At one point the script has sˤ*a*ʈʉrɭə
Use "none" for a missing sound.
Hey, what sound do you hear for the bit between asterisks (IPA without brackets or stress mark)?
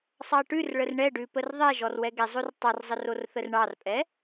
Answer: ɑ